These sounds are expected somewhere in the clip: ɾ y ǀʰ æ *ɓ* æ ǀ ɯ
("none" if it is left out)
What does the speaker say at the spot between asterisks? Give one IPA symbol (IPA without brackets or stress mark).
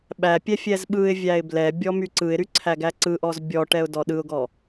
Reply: ɡ